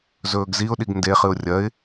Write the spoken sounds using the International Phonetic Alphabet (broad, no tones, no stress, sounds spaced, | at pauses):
z ɵː ɡ z i ʊ̯ ɗ i ɡ n d e χ ɨ ʊ̯ rʲ ɐ ɪ̯